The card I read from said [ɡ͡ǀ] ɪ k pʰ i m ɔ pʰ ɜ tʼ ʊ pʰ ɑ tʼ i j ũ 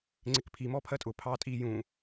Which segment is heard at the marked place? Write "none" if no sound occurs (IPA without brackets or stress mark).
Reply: ŋ͡ǀ